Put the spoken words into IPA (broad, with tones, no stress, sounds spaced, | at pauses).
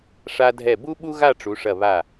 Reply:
ʂ a˧ dʱ ɛ˧˩ b u˥ ɓ u˥ ɣ a˥˧ ʈ͡ʂ u˩˧ ʂ ɐ˧˩ β a˧˩